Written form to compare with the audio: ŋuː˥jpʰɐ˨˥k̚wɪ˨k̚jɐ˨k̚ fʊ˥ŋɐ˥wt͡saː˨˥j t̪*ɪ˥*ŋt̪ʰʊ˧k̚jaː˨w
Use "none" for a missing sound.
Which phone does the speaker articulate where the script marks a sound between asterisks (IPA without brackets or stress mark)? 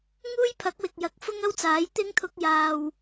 ɪ˥